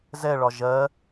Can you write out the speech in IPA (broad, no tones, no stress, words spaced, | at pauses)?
zɛɭɒ ʒɜ